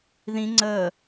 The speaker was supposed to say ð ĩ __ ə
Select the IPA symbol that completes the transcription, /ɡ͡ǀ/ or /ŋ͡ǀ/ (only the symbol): ŋ͡ǀ